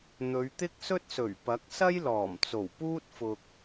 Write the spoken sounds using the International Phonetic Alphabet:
n̪ɵ˨˧ɥt̪ɪ˥k̚sɵ˥t̚sɵ˨˩ɥ pɐ˨˥k̚sɐ˥jlɔː˨˩mt͡so˨˩w puː˥t̚fʊ˨k̚

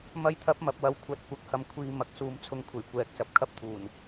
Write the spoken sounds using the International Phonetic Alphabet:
mɐ˧jt̪ʰɐ˨˥p̚ mɐ˨p̚wɐ˨˧w kʷʰɐ˨˥t̚kʷɐ˨k̚hɐ˨m kʷʰiː˨ mɐ˨k̚suː˨mt͡sʰʊ˨˧ŋkʷʰe˨˩j kʷɛː˨k̚ sɐ˨p̚kʰɐ˧p̚t̪ʰuː˨˩n

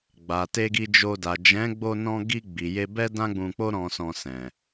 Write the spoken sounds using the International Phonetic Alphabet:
ɡ͡ba˨te˧ɡi˧ d͡ʒo˧da˨ d͡ʒɛ̃˨˦ɡ͡bo˧nɔ̃˧ ɡi˧ ɡ͡bi˨je˧bɛ˦ dã˦ɡ͡bũ˧k͡po˦ ɾɔ̃˧sɔ̃˧sɛ̃˨

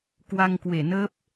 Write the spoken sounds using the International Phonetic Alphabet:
kwa˧ŋkwe˧˩nəː˦˥p̚

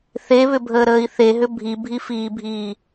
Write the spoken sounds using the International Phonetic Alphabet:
θeβʏbʱəːɾəːi̯ θeɦʏ bʱibʱifiːbʱiː

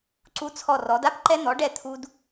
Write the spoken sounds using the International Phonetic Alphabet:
ǀu˧t͡sʰɔ˧˩rɔ˩˧d a˥pǃɛ˧n̪ɔ˩˧ɖɛ˧˩ t̪ʰu˧d

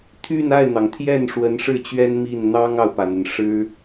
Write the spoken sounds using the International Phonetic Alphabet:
t̪ʰy˥˧n a˥˩ɪ̯n̪ɑ˩ŋt̪ʰjɛ˥˩n ʂwə˧˥nʂɻ̩˥˩t͡ɕɥɛ˥n mi˥˩n n̪ɑ˥ŋɑ˨ʊ̯pä˩n̪ə˩n ʂɻ̩˥

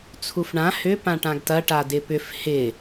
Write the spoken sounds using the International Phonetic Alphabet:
t͡sʰufɳã hʏ pãʈãɡtɐ ʈadɪpʏf hɪ

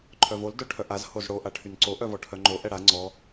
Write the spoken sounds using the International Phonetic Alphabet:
ǃʰœvol dœʈʰœʔaz hozɽo ʔaʈʰynǀo ʔœvɔʈʰœŋ͡ǃo ʔɛɽa ŋ͡ǀɔ

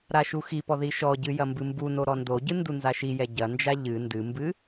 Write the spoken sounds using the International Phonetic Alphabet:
ɾaʃuxipɔ ðiʃɔɟɨ jɐmbɨmbuno ɾɔndoɟɨ ndunzaʃijɛ ɟɐnd͡ʒa ʎɨ ndɨmbɨ

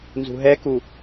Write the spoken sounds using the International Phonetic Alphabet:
nzṳɦɛku

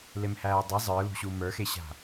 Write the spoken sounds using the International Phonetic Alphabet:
lemhæːdˤe zˤə˞lṳɕu mə˞xeɕa̤

